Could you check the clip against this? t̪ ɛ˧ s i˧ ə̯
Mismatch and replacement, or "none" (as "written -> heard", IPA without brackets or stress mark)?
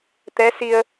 ɛ˧ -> ɛ˧˥